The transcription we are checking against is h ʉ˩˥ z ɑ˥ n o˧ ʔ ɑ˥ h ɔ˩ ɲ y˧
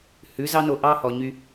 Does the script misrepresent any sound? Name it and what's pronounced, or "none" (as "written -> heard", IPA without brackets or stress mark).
none